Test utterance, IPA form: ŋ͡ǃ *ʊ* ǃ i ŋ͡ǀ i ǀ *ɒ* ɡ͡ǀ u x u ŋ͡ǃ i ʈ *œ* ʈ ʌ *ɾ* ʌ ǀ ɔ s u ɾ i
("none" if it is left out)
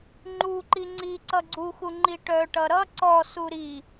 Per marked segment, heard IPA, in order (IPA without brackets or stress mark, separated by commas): u, ʌ, œ, ɾ